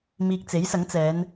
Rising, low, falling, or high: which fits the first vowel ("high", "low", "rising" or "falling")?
low